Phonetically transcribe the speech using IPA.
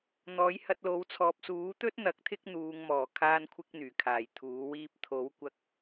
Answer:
n̪ ɔː˨˥ j h ɐ˧ t̚ l o˨˧ w t͡sʰ ɔː˨ p̚ s uː˨˥ t̪ ɵ˥ t̚ n̪ ɐ˨˥ k̚ t̪ʰ ɪ˥ k̚ n̪ uː˨˧ ŋ m ɔː˨˩ kʰ aː˧ n kʷʰ ɪ˧ k̚ n̪ yː˨˩ kʰ aː˨˩ j t̪ʰ uː˨˥ w iː˧ p̚ t̪ʰ o˨˥ w kʷ ɐ˧ k̚

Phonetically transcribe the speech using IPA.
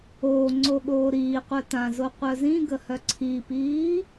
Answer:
oː ŋ͡ǀ o ɠ oː ɾ iː qʷ œ t ã z o qʷ œ z ĩ ɡ ə h œ ǀʰ i p iː

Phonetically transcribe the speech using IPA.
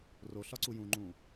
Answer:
r o ɬ ɒ ǀ u j ũ ŋ͡ǃ ũ

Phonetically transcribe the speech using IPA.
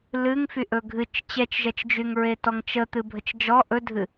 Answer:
l ɨ ŋ f y ʔ ɵ ɡʱ ɨ t͡ʃ t͡ɕ ɛ t͡ʃ ʒ ɛ t͡ʃ d͡ʒ y ŋ ɹ e t ɔ ŋ t͡ʃ ə t̪ ɨ bʱ ə t͡ʃ d͡ʒ ɔ ʔ ɵ dʱ ɨ

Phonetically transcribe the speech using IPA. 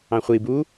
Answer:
ɑ̃ χʷ i b u

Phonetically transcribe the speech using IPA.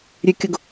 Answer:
ɾʲ ʉ kʲ ʊ ɡ

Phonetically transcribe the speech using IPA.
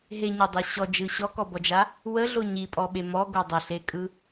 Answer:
ɦ e ɲ a dˤ e ɕ ɔ d͡ʒ ɯ ɕ ɔ k ɔ b ɔ d͡ʒ a | w ə ɮ o ɲ i pʼ ɔ ɓ e m ɔ ɡ o dˤ ə ɬ e kʼ ɯ

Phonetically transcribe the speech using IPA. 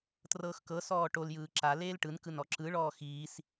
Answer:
t r ɤː x k ɤ s ɔː ʈ o l j ɯː ǁ a l eː l ʈ ɯ n k ɯ n ɔ ǁ ɯ ɭ ɔː x iː s

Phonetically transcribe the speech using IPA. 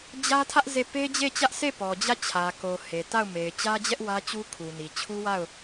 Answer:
d͡ʑ ä˦ tʰ ä˦ ʔ z e˦˨ p e˦ d͡ʑ e˦˨ t͡ɕ ä˦ ʔ s e˦˨ p ɔ˨ d͡ʑ ä˦˨ t͡ɕʰ ä˨ k o˨ h e˨ t a˦˨ ʊ̯ m e˨ ɪ̯ t͡ɕ ä˦ d͡ʑ ɛ˦ ʔ w ä˦ t͡ɕ u˦ kʰ u˨ n i˨ t͡ɕʰ u˦ w a˦˨ ʊ̯

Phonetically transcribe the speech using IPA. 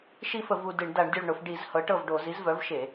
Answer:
ʃ i˦˨ f ə˧˩˧ v u˦˨ d ɨ˧˩˧ ɳ d a˧˩˧ ɳ dʲ o˦˨ ɭ ɳ ʊ˧˩˧ f ɖ i˧˩˧ z h ɤ˩˥ ʈ ɤ˦˨ v ɖ o˧˩˧ z i˩˥ z v œ˩˥ v ʃ e˧˩˧

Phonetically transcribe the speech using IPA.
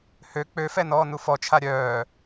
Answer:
h ø k͡p ø f ɛ n ɔː n u f ɔ t͡ʃʰ a ɾʲ œː

